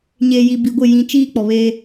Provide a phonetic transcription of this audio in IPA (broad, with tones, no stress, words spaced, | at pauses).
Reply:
ɲeː˨ji˨ bi˨ɡʷɪ˦˨ jĩ˦ t͡ʃiː˦ k͡pɔ˨βeː˦